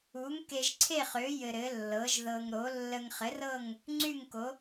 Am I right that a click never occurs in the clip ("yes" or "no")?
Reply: no